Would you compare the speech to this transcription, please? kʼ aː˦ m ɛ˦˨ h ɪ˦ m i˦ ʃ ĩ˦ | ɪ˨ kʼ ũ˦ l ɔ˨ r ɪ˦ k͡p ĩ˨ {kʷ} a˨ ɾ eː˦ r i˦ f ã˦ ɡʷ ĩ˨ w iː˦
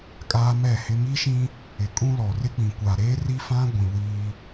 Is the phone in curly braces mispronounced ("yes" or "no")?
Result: no